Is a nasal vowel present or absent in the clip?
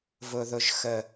absent